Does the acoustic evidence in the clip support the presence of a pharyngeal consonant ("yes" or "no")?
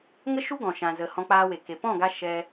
no